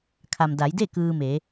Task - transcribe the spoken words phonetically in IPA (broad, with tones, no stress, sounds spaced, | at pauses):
kʰ a˩ m d a˩˧ j d e˥˨ k ɯː˧ m e˩˧